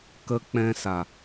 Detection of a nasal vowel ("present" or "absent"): present